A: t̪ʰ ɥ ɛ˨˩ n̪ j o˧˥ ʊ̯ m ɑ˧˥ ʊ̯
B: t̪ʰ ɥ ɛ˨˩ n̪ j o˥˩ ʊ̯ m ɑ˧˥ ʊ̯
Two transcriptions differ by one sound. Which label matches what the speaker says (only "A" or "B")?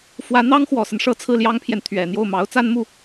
B